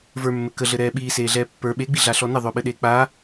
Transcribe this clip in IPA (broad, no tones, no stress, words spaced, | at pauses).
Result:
və˞mːɘ kəɮɘɾɛː ɓiːseːɮɛː pːə˞ ɓeɡ͡biɮaɬɔ nɪðˤʊːɓɘɗeː k͡pa